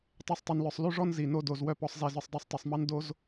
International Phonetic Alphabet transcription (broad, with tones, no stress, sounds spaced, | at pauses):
tˤ e˦ sˤ tˤ y˧ n l œ˧ sˤ l y˦ ʐ ɔ˦ n z i˨ n o˧ d o˨ z w œ˦ p ɔ˧ sˤ z e˧ z œ˧ sˤ dˤ o˧ sˤ tˤ i˨ sˤ m ɑ˦ n d o˦ z